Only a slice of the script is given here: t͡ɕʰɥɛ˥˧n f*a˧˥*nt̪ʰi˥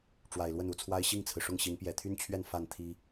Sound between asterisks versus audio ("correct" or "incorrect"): incorrect